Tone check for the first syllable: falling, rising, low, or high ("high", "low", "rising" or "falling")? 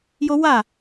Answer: high